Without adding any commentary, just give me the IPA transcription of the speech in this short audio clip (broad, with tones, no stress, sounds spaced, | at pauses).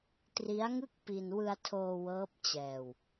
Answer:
t r i˦˥ a̯ ŋ ɯ˥˩ k̚ p i˧ n w ɯ˧ a̯ tʰ oː˧ w ɤː˦˥ p̚ t͡ɕ ɛː˧ w